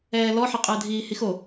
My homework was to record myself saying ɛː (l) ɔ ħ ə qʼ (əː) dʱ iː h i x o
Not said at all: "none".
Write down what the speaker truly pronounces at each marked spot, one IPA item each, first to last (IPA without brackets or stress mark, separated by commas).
l, əː